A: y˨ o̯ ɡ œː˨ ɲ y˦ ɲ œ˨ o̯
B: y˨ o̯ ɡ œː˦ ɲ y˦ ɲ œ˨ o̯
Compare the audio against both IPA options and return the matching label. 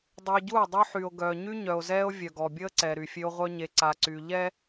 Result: A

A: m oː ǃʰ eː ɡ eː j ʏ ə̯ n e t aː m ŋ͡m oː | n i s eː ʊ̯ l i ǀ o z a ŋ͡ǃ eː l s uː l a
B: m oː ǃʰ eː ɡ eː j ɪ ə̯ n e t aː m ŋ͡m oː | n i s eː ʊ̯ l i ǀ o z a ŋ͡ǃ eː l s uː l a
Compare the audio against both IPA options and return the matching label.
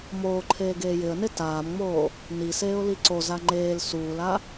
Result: B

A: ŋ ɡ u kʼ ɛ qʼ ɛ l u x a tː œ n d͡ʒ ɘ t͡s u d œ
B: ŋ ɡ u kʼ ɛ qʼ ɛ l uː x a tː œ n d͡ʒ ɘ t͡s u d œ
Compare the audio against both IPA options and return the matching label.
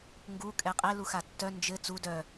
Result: A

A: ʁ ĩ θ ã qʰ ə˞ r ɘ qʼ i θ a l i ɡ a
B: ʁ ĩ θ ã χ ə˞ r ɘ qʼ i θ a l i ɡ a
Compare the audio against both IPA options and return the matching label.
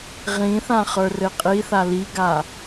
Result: B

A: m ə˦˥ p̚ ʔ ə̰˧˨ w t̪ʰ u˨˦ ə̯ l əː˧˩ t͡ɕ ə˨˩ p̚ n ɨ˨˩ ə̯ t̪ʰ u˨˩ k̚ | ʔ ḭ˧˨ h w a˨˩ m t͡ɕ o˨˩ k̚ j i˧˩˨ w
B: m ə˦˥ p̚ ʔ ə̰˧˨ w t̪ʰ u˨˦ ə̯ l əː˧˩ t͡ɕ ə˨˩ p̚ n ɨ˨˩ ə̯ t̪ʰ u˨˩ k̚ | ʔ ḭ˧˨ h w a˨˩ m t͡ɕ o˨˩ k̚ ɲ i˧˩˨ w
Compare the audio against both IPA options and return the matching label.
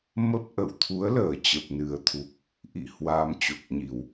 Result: B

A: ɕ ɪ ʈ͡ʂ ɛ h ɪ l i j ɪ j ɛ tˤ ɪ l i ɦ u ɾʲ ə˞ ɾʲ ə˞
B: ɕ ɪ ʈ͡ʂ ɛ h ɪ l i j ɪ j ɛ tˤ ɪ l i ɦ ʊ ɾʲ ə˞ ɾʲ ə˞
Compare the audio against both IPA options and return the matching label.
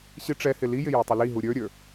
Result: A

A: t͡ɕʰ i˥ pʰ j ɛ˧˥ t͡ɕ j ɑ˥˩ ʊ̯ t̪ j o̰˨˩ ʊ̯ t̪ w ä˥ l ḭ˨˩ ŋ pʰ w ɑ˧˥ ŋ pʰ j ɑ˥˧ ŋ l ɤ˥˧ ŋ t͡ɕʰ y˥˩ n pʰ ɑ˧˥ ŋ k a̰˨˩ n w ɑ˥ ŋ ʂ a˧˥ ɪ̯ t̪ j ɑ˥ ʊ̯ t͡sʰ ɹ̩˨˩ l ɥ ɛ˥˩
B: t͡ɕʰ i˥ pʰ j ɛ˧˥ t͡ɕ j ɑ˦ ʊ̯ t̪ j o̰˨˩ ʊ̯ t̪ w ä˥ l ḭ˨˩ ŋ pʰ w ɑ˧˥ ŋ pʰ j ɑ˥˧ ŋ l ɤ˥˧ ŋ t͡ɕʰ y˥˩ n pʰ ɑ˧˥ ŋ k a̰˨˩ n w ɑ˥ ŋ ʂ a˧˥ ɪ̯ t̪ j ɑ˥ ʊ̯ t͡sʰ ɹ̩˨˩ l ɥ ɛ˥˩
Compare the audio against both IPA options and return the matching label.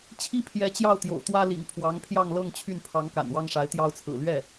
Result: A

